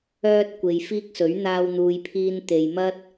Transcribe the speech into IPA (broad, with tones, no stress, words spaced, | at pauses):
œː˧t̚ kʷe˨jfiː˥k̚sɵ˨˥ɥ n̪aː˧wn̪uː˨jpʰiː˧n t̪e˨jmɐ˥t̚